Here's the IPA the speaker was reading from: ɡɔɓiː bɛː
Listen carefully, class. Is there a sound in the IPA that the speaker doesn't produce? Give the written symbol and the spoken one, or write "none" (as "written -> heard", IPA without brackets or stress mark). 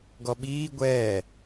b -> ɡʷ